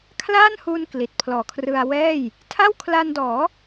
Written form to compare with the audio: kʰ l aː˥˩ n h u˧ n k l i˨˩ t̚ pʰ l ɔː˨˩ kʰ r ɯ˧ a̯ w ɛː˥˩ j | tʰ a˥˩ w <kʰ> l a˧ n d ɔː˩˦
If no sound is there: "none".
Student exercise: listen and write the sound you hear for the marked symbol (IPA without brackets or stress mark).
kʰ